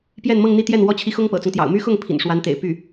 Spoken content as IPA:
p j ɛ˥˧ n m ɤ˥˧ ŋ n̪ i˥˧ t̪ j ɛ˥˩ n w ɔ˥ t͡ɕʰ i˧˥ x ʊ˥ ŋ p ɤ̰˨˩ t͡s ʊ˦ ŋ t̪ j ɑ̰˨˩ ʊ̯ m y˥ x ʊ˥˩ ŋ pʰ ḭ˨˩ n ʂ w a˧˥ n t̪ ḛ˨˩ ɪ̯ p y˥˩

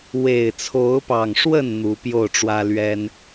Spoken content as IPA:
w e˨˩ ɪ̯ t͡sʰ o˨˦ ʊ̯ p ɑ˨˩ ŋ ʂ w ə˥˨ n n̪ u˨˦ p j o˥˨ ʊ̯ ʈ͡ʂ w ä˦ l ɥ ɛ˦ n

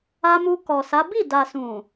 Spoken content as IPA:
a˧ m u˧ k ɔ˨ s a˨˦ b i˦˨ d a˨ s ũ˨

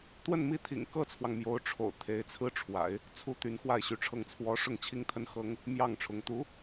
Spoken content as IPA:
t̪ w ə˥˧ n m i˥˩ t̪ʰ ḭ˨˩ ŋ k ɤ˥ t͡sʰ w ɑ˨ ŋ m j o˧˥ ʊ̯ ʈ͡ʂʰ o̰˨˩ ʊ̯ t̪ʰ e˧˥ ɪ̯ t͡sʰ ɹ̩˥ ʈ͡ʂʰ w a̰˨˩˦ ɪ̯ | t͡sʰ u˧˥ t̪ y˧˥ n x w a˥˩ ɪ̯ ɕ y˧˥ ʈ͡ʂʰ ɤ˥˩ ŋ t͡sʰ w ɔ˧˥ ʂ ʊ˥˩ ŋ t͡ɕʰ i˥ ŋ t̪ʰ ə˥ n x ɤ˥ ŋ | m j ɑ˥˩ ŋ ʈ͡ʂʰ ʊ˧˥ ŋ t̪ u˧˥

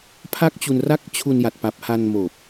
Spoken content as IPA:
pʰ a˥˩ k̚ t͡ɕ u˧ n r a˥˩ k̚ t͡ɕʰ u˧ n j a˨˩ t̚ p a˨˩ p̚ h a˧ n m oː˨˩ p̚

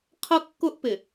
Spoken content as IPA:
qʰ ʌ˦ kː ʊ˦ ʔ p ɪ˨

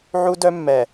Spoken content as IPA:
ʕ u˦ d œ˦ mː ɛ˨

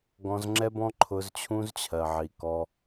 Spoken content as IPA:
ɡ ɔ̃˧ z ŋ͡ǁ ɛ˦ b ɔ̃˦ ǃʰ ʊ˧ z t͡ɕʰ ũ˦ z t͡ɕʰ ɜ˨ ʕ i˨ k ɔ˧

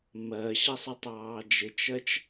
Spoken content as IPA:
m ɜ ɕ ʌ sˤ ɪ tˤ ɑː d͡ʒ ɪ t͡ʃ ɜ t͡ʃ

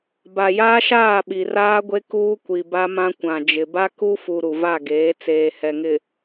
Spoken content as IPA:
b a˨ j aː˦ ʃ aː˦˨ ɓ i˨ r aː˦ ɡʷ e˦ k uː˦ kʷ i˨ b a˦ m ã˦ kʷ ã˨ d͡ʒ ɪ˨ b a˦ k u˦ f u˨ ɾ u˨ v a˦˨ ɡ eː˨˦ t͡s eː˨ h ɛ˨ ŋ ɪ˨

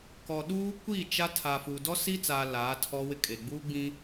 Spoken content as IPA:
k ɔ˨ ɗ uː˦ kʷ i˦˨ t͡ʃ a˦ tʰ aː˨ f uː˨ d ɔ˦ s i˦ t͡s aː˨ l aː˨˦ tʰ ɔ˦ w ɪ˦ kʼ e˨ ɡ͡b uː˦ ɡ͡b ĩ˦

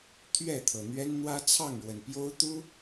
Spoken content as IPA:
t̪ʰ ɥ ɛ˥˨ t̪ʰ ɤ˩ n̪ ɥ ɛ˦ n n̪ w ä˦ t͡sʰ ɑ˥˨ ŋ ɻ w ə˩ n p j o˦ ʊ̯ t̪ u˦

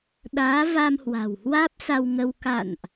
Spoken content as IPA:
ɗ aː˨˦ v a˧ m h w a̤˨˩ w h w aː˦˥ p̚ s a˧ w ŋ ə˧ w k a̰˧˨ n ʔ

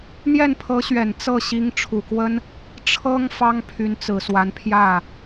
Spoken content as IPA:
n̪ j ɛ˥˩ n pʰ ɤ˧˥ ɕ ɥ ɛ˨˩ n t͡s ɤ˥˩ ɕ i˧˥ ŋ ʈ͡ʂʰ u˨˩ k w ə˥ n | ʈ͡ʂʰ ɤ˥ ŋ f ɑ˥ ŋ pʰ y˧˥ n t͡s ɹ̩˨˩ s w a˧˥ n pʰ j ä˥˩

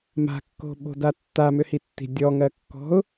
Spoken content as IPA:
m a̤ kː o̤ ɓ o̤ d a tː a m ʏ h i tː i̤ dʲ ɔ ŋ ɜ kː ɔ̤ ʊ̯

